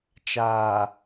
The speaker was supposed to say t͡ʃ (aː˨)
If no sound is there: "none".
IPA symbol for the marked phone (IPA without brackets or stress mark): aː˨